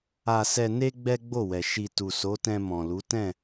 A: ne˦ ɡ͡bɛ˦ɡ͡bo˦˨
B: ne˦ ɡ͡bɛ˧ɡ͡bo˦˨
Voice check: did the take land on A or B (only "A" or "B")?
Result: A